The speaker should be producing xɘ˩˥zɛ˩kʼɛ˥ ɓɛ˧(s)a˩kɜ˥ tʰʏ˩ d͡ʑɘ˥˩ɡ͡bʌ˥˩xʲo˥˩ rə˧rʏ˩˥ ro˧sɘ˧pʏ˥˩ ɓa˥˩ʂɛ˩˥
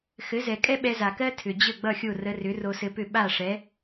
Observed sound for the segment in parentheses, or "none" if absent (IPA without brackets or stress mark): z